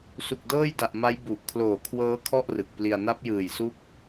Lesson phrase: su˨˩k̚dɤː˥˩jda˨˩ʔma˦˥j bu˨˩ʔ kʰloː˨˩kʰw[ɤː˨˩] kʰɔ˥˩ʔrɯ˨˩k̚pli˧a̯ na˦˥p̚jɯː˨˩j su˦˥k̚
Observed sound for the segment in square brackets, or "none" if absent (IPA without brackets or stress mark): ɤː˦˥